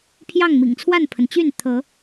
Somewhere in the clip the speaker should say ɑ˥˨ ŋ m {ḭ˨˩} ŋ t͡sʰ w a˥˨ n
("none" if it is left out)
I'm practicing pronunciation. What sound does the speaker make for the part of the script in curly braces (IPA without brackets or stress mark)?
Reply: ḭ˨˩